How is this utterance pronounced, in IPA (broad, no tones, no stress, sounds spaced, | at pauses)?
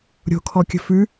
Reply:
ɾʲ o̤ kʰ ɔ kʲ ə̤ f ʉ